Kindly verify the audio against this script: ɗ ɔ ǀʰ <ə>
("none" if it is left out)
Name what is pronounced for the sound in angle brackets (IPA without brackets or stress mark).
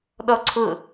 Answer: ʊ